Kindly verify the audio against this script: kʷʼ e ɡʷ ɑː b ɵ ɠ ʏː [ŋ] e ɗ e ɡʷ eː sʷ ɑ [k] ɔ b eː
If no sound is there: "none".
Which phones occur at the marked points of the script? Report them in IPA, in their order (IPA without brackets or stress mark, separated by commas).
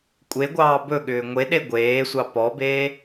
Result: ŋʷ, p